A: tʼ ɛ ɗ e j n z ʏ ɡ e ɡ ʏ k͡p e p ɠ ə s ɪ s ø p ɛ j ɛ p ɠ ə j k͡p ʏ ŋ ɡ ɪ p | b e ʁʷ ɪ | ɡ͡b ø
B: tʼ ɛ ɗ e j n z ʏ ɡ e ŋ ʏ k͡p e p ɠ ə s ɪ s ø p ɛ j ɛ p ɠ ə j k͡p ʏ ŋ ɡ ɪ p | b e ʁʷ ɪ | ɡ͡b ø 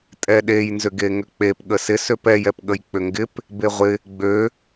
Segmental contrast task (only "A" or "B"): B